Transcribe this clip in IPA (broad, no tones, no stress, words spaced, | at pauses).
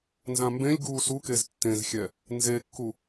nzãmbẽlʲ ɡuːsukez tːẽzxʲɛ | nzekːu